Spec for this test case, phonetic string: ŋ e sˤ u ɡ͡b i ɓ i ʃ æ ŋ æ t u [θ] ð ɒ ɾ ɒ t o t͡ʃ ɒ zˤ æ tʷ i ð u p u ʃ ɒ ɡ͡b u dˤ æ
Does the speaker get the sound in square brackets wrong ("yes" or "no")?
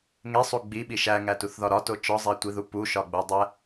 no